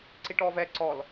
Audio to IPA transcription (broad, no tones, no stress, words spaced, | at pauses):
ǀiʈɔvɛ ǀɔl